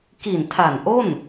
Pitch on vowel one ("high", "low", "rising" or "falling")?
low